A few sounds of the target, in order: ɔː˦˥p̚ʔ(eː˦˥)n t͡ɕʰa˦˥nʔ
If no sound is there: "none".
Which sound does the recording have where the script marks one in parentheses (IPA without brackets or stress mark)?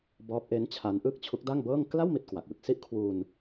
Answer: e˦˥